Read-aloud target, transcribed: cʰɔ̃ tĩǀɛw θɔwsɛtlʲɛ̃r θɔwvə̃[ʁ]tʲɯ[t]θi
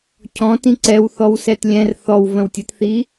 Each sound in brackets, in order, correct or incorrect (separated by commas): incorrect, correct